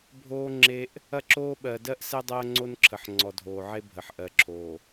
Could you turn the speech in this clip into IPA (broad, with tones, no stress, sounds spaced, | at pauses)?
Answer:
bʱ oː˦ ŋ͡ǁ e˦ ʔ | ɐ˦ ǁ oː˦ ɓ ɜ˨ d ɜ˦ ʔ s ɛ˦ dˤ ɜː˦ ŋ͡ǀ o˦ n ǁʰ ə˨ ħ ŋ͡ǀ ɔ˨ dʱ oː˨ ʕ e˦ bʱ ə˨ ħ ʔ ɜ˨ ǁʰ oː˨